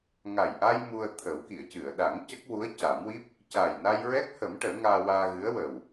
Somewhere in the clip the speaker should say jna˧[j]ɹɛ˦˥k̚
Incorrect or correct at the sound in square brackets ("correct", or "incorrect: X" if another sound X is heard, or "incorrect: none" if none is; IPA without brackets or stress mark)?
correct